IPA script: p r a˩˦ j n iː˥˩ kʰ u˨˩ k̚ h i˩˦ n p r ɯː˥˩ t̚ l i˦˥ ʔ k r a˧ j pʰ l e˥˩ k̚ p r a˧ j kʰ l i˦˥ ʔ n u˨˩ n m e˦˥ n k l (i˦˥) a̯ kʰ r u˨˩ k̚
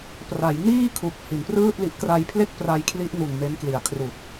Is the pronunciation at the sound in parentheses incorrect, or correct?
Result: incorrect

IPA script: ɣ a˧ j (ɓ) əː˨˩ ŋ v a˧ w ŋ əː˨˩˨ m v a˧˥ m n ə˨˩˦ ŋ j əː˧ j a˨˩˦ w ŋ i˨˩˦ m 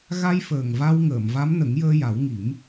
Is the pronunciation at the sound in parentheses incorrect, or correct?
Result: incorrect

